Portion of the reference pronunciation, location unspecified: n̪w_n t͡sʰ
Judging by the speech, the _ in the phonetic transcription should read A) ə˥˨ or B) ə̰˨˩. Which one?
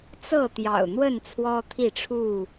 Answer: A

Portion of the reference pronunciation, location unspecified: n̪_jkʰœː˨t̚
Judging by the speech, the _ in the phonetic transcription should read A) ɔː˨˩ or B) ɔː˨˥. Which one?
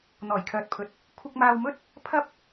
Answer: A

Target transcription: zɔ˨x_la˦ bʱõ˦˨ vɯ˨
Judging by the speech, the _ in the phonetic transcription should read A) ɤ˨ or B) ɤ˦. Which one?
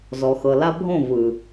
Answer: A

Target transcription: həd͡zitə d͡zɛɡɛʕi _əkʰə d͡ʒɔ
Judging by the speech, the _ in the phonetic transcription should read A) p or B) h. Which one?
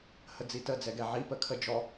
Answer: A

